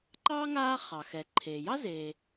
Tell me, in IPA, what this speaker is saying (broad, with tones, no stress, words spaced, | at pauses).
ǃɑː˥ŋaː˦ χɑ˩xɛ˩ǃʰeː˩jɑ˥ zeː˩